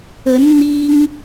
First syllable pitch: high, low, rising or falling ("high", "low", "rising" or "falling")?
rising